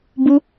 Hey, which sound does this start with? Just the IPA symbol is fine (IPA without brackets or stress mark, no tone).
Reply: b